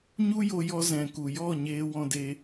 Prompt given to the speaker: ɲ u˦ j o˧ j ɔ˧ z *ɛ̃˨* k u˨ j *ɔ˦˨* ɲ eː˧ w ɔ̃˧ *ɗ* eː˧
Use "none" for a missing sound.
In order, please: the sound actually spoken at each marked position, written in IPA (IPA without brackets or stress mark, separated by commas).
ɛ̃˨, ɔ˦˨, d